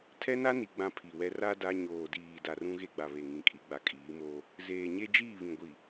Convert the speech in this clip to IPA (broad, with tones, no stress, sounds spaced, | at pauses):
tʰ ɛ˦ n a˦ n i˨ ɡ͡b ã˦ pʰ i˨ w ɛ˦ r a˦ d a˦ ɲ oː˨ d iː˨ d a˨ r ũ˦ ɣ e˦ ɡ͡b a˨ β e˨ ŋ ĩ˨˦ kʼ i˨˦ ɡ͡b a˨ kʼ iː˨˦ m oː˦ | z eː˨ ɲ e˦ d͡ʒ iː˦˨ β ĩ˨ ɡʷ i˨